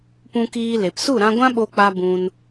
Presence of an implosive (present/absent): present